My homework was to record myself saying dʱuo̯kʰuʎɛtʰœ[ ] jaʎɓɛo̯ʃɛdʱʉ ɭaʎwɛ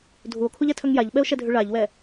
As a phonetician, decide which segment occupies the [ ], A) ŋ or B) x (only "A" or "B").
A